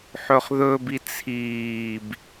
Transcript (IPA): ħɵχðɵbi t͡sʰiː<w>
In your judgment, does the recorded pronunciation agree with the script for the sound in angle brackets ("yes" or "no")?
no